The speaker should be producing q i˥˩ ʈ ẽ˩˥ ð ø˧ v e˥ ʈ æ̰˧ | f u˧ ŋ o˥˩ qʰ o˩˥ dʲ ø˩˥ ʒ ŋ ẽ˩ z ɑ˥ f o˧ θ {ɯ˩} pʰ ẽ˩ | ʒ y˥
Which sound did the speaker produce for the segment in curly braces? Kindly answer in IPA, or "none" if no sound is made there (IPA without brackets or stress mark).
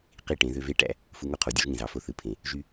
ɯ˩